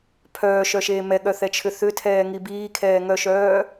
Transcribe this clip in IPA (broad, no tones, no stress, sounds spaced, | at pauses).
pʰ œː ʃ œ ʃ eː m ɛ ɠ œ θ ɛ t͡ʃʰ ʏ θ ʏ tʰ ɛː ŋ i b iː kʰ ɛː ŋ œ ʃ œː